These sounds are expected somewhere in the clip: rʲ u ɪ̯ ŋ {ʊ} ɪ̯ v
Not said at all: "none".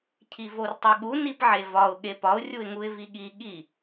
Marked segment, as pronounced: u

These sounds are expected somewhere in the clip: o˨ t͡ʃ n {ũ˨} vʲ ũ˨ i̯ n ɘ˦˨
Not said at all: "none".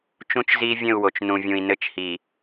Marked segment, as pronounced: ũ˨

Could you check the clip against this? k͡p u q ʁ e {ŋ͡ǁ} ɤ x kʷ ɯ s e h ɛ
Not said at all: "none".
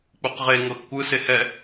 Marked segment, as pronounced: ŋ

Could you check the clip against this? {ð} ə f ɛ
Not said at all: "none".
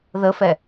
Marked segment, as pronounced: ð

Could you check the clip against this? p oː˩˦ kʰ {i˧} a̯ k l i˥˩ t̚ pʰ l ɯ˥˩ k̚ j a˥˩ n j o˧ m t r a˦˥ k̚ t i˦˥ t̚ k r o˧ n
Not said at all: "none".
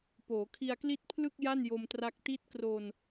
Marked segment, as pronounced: i˧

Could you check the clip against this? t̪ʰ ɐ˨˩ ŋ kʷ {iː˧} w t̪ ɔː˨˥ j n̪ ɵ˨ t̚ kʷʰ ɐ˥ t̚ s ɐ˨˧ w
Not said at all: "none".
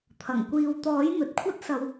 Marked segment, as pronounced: iː˨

